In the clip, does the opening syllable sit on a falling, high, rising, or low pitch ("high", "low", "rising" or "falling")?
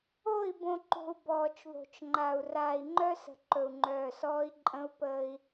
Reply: falling